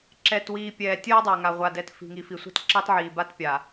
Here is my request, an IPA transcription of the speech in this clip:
ǁɛː˨twiː˨ pʲɛː˨tʲəː˦dˤa˨ ŋa˨ʁʷa˨ dɛ˨t fi̤˨ŋi˨fi˨ sʷa̤˦tǁɑ˦tʕiː˨ba˦t pʲa˨

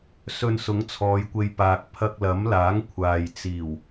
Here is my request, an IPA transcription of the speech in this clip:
sɵ˧nsʊ˨˥ŋt͡sʰɔː˨˧jkʷe˧j paː˨k̚pʰɐ˧k̚lɐ˨˥mlaː˨˥ŋ kʷʰaː˨jt͡siː˨˩w

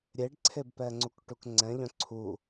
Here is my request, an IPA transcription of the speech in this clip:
ɾʲeɖǀʰebpɛŋ͡ǀuk ʈukŋ͡ǀɛ̃ʎœ̃ ǀʰu

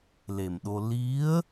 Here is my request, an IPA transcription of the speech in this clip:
le˨˩mɗo˧ li˧˥ə̯

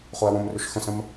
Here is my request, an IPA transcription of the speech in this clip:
χoɐ̯wõmrʏʃ xə̃sə̃m

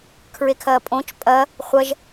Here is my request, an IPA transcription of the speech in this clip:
kʰɹekʰɐːpʼõt͡ʃ pʼɐ | χʷɐʒ

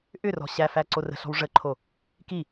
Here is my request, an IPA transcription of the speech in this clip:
ʔʏrɔ̤ ɕæfæ ǀorə̤ɬɔ̤w ʐəǃʰo | ki

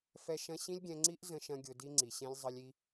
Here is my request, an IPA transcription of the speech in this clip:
fɛ˦ʃɐ̃˦ ɕĩ˦lʲɡʲɛ̃˧ŋ͡ǀi˦ʔ zə̃˦ʃɐ̃˦ɡʲʊ˧ di˦ŋ͡ǀi˨ɕɛ̃˦lʲ zˤə˧lʲi˧

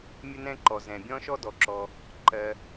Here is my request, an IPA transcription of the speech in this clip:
mʲə˥nɛ̃˥ ǃɔ˩zɛ̃˩bʲɔ̃˥ʃɔ˥ dɔ˩ǁɔ˩ | ǃɜ˩

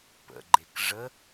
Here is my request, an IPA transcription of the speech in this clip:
pə̰ɡ͡ǃek ʐə

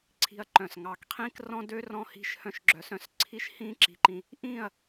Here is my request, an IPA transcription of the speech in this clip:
ǀʰi̤˧ɐ̯ǃœ̃˨s ŋɑ˨kqʰĩː˦k rɔ̃˦dø˦ rɔ̃˧hi̤˧ʃhœ̃˧ʃ ɡ͡ǁœ˨sœ̃˧s ǀʰi˦ʃhĩː˦ǁi̤˨ǃĩ˨ | ʔĩː˦˨ɐ̯

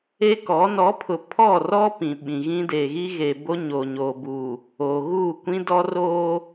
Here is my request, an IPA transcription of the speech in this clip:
e˦kɔ˨˦ nɔ˨˦pʰʊ˨ pʰɔ˦˨ rɔ˦pĩ˨ ɓĩ˨ɣĩ˦ deː˨ɣi˦ɣe˨bo˦ ɲo˨ɲoː˨bu˨ | oː˨ɣu˦˨ kʷĩ˦dɔ˦roː˦

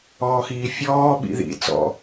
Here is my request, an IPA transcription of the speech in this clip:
ɔːxiːfʲɔː ɓḭðḭ t͡sɔ̰

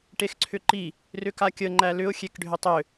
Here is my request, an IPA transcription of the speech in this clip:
ʈexǀʰʏǃi | rʏkakʲə ŋ͡ǃælʏʊ̯ xʲekɖʱʏtˤʏ

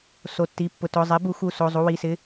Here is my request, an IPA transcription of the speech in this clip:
so˩˧˩tːi˩˧˩pːʊ˩˧˩ tʊ˩˧˩ zˤi˩˥bu˩˥xu˩˧˩ so˩˧˩ zˤu˩˧˩wi˩˧˩sɪ˩˧˩

